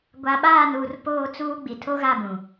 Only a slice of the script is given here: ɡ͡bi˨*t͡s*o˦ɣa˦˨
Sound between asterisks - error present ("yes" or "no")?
yes